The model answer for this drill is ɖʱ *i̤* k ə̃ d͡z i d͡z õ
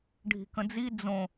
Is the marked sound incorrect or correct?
correct